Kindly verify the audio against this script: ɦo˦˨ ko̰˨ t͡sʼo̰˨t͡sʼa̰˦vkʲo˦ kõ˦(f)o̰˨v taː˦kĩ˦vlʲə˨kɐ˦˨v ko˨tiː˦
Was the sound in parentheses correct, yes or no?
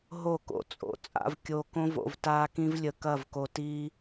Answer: no